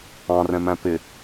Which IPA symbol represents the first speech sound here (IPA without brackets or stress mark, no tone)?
ɑ̃